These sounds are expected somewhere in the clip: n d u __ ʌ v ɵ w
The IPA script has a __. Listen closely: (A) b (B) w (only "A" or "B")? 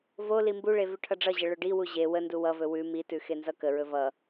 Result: B